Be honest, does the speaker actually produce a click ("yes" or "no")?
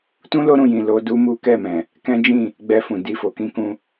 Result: no